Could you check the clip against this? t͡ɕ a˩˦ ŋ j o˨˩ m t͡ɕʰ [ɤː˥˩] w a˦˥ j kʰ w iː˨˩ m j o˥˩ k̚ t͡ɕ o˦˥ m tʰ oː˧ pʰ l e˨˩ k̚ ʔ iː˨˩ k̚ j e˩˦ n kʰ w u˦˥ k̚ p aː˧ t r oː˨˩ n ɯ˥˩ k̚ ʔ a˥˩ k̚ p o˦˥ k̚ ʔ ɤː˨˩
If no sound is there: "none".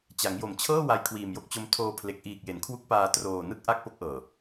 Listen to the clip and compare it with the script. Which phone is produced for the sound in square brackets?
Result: ɤː˥˩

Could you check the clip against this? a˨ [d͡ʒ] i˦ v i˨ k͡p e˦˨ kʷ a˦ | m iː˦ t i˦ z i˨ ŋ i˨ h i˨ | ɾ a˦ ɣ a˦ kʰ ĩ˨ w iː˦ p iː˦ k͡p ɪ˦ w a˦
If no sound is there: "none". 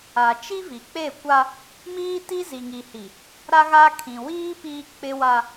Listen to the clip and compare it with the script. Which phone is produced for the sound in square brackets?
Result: t͡ʃ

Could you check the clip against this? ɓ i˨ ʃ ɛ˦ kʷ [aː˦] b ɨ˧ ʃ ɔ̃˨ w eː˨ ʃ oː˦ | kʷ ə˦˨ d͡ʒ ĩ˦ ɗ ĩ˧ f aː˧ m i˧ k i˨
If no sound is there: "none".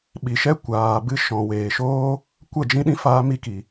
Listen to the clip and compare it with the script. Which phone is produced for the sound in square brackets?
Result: aː˨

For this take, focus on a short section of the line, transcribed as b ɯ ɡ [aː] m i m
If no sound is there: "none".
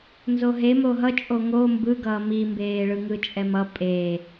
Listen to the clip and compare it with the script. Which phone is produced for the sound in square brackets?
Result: ʌː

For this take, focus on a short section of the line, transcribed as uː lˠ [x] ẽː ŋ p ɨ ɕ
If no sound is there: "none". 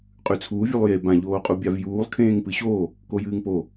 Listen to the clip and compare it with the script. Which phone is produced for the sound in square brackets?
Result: kʰ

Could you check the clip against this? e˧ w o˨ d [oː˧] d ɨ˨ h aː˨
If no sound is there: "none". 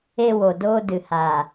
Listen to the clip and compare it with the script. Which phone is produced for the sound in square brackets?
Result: oː˧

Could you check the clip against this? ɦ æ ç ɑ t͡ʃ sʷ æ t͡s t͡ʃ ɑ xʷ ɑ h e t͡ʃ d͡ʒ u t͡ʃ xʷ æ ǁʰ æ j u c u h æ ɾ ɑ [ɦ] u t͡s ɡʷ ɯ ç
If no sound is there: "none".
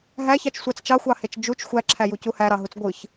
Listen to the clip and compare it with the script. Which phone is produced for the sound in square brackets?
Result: ɦ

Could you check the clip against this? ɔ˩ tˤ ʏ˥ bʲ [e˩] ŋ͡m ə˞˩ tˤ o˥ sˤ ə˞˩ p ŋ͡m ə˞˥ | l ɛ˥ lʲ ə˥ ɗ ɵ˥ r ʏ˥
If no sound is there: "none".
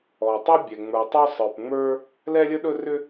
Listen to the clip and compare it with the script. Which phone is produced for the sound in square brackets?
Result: ɛ˩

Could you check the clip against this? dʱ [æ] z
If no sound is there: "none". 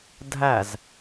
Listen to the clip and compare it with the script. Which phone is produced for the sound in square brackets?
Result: æ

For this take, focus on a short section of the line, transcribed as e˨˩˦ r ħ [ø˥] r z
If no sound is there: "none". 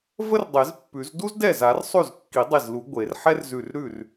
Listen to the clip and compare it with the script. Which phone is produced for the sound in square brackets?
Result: ɛ˥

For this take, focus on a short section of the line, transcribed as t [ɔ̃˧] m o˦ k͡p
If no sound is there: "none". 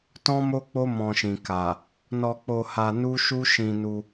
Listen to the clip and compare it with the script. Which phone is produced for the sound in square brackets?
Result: ɔ̃˦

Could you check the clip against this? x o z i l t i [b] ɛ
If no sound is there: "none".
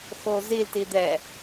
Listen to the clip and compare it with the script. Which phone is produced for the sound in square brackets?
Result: d̪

